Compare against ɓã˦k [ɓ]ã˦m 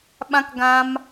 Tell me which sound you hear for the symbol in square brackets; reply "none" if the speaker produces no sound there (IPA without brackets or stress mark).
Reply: ɡ